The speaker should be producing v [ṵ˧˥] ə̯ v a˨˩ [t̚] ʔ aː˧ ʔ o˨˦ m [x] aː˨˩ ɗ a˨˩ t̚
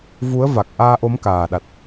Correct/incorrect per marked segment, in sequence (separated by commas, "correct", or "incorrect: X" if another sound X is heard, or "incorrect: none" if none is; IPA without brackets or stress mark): incorrect: u˨˦, incorrect: k̚, incorrect: k